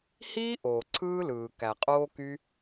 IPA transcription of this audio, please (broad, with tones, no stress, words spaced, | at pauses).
hiː˥ʔoː˩ ǀʰɯː˥lɯː˩ kæ˩qʼoː˥ ky˥